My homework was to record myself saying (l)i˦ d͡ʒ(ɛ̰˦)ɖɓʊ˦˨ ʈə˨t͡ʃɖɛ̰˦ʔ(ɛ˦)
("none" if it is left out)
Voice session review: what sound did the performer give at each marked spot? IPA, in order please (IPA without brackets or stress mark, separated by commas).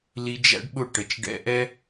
l, æ̰˦, ɛ˦